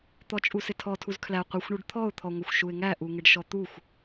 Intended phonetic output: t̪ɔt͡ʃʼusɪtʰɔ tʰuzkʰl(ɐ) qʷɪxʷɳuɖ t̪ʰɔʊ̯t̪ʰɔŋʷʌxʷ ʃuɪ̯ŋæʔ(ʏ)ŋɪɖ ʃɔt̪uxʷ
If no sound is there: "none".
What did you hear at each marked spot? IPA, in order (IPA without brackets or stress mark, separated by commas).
æ, u